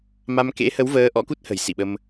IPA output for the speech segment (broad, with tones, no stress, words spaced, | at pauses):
ma˧m kḛ˧˥hə˨˦wvəː˨˦ ʔɔ̰˧˥ku˦˥t̚hə̤˨˩j sḭ˧˨ɓə˧m